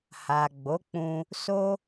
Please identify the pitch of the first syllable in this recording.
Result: low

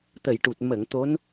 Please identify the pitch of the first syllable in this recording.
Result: low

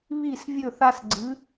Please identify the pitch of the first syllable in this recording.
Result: falling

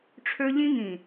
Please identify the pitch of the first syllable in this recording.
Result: high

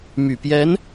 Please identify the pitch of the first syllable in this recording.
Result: low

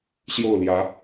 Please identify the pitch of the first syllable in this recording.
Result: falling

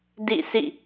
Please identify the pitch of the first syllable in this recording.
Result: falling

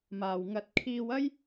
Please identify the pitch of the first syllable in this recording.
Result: low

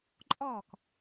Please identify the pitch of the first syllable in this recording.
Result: falling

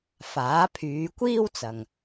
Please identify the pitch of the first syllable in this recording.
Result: rising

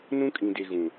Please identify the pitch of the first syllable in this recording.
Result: high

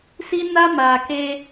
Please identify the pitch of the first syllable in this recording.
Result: high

